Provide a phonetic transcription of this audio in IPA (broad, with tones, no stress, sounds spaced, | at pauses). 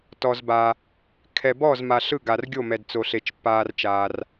t ɔ˨ z b a˨ | kʰ ɛ˨ b ɔ˥˨ z m a˨ ɬ ɯ˥˨ ɡ a˨ r ɡʲ o˥˨ m ɛ˨ d t͡s o˨ ɬ e˨ t͡ʃ pː aː˨ r t͡ʃ aː˨ r